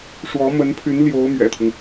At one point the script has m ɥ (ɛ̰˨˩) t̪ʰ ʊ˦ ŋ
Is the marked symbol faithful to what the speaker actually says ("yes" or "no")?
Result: yes